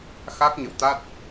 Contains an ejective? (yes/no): no